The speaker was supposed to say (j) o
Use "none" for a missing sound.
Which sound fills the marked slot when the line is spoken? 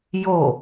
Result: j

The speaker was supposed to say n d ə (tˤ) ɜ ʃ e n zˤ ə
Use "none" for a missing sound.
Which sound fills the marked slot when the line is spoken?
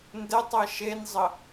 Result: tˤ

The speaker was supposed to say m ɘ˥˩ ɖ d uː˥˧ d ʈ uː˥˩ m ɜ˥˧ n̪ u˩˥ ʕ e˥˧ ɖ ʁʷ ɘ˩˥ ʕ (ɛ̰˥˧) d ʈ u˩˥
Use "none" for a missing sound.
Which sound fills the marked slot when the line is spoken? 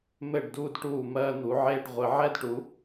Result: ɛ˥˧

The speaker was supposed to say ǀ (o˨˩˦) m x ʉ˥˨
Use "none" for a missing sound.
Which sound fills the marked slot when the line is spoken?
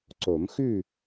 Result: o˨˩˦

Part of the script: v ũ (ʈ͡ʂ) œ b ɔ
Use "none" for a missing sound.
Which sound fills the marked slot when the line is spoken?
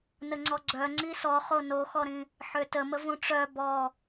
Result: ʈ͡ʂ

